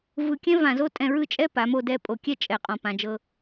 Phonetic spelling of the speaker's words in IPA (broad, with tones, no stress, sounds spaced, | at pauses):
v ɯ˧ kʲ ɛ̃˥ v ã˧ z o˥ tʼ ɛ̃˧ ɹ ɯ˥˧ t͡ʃʼ ɛ˥ p a˩˧ m o˧ d ɛ˧ pʼ o˧˩ kʲ ɛ˥˧ t͡ʃʼ ɛ˧˩ qʼ ɔ̃˧˩ p ã˧ d͡ʒ ɤ˧